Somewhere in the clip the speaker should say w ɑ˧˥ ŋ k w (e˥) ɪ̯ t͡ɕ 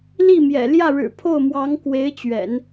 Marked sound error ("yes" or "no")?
yes